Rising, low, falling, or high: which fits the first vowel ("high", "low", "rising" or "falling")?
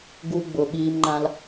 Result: high